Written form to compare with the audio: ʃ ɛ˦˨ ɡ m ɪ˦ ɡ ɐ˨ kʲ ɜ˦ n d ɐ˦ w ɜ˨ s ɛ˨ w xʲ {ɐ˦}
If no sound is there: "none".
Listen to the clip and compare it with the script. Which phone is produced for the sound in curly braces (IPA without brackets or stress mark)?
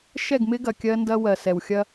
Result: ɐ˦